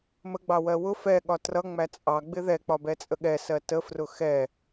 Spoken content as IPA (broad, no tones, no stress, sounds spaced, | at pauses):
m ə ɡ͡b ɑ w ɜ w ʊ f ɛ ɠ ɒ t r ʌ ŋ͡m æ t͡sʼ ɑ ɡ͡b ɪ ð ɛ k͡p ɒ b ɛ t͡sʼ ə ɠ ɛ s ɜ t ə f r ʊ x ɛ